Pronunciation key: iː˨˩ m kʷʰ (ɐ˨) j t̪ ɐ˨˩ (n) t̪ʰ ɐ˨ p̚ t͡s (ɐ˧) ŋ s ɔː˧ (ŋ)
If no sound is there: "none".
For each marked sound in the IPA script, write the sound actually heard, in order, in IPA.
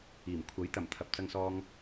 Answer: ɐ˨˥, m, ɐ˧, ŋ

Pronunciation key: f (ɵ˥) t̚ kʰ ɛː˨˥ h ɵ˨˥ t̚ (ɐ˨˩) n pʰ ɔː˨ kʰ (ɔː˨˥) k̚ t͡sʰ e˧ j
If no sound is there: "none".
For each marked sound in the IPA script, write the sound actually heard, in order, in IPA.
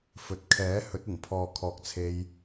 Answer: ɵ˨, ɐ˨˩, ɔː˨

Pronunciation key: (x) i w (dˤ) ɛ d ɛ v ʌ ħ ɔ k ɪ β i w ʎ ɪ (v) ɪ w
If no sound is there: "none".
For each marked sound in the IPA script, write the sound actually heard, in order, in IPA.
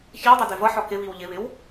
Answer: ç, dˤ, β

